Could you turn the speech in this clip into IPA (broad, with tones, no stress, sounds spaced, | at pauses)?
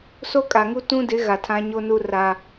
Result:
s o˦ kʼ a˨ ŋ u˦ t ũ˦ d ɪ˨˦ ɣ a˨ tʰ ã˦ ɲ o˦ n u˦ r a˦